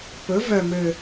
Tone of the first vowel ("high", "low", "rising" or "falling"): rising